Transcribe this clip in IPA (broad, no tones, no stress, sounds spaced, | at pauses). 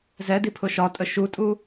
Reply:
z ɛ d i pʰ ʊ ʃ ɒ tʼ ə ʃ u tʼ u